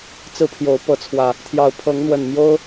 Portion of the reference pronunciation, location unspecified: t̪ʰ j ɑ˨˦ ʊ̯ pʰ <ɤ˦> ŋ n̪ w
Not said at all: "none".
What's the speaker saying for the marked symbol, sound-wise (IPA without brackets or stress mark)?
ɤ˨˦